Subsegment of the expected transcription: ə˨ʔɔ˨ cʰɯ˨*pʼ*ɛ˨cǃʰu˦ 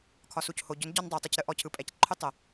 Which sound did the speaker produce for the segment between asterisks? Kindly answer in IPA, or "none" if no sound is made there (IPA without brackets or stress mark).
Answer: pʼ